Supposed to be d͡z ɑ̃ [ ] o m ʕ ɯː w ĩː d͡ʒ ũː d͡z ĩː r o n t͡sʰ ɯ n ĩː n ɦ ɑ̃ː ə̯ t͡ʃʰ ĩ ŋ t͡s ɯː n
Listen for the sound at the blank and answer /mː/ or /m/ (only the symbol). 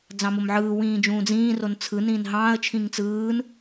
m